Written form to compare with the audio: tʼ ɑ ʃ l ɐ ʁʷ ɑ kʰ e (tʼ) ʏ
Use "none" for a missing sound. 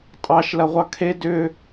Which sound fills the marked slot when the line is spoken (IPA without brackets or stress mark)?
d